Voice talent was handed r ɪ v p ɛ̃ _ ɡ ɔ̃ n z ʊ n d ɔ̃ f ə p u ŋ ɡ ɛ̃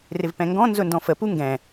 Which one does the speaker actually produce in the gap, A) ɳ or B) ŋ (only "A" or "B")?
B